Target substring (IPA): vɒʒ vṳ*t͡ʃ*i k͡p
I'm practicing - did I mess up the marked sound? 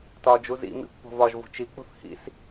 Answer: no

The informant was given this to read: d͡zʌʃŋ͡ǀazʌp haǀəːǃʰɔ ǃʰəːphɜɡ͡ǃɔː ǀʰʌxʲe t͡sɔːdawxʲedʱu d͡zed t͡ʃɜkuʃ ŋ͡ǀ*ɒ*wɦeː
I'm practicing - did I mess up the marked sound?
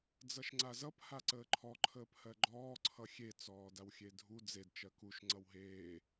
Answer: yes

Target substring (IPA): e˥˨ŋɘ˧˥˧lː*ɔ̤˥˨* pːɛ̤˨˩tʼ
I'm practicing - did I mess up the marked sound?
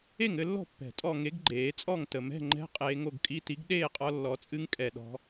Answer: no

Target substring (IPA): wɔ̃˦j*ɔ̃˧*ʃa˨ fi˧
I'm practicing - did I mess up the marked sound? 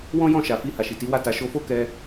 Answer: yes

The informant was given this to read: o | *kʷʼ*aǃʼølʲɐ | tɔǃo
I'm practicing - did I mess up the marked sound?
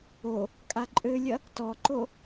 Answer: yes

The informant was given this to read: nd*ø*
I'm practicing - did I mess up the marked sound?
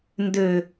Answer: no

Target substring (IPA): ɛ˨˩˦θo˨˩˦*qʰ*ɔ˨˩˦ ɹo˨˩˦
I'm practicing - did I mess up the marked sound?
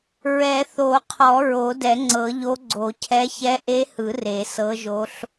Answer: no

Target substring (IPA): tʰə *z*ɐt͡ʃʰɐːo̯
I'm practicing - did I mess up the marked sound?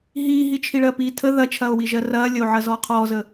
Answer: yes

